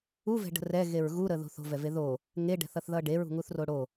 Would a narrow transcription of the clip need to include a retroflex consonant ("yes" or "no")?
yes